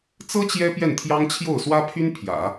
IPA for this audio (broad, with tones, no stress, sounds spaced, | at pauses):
t͡s ɤ˥ t͡ɕ j ɛ˥ p j ɛ˥˩ n t̪ʰ j ɑ˥ ŋ t͡ɕʰ j o˥˩ ʊ̯ s w ä˥ pʰ y˥ n pʰ j ä̰˨˩˦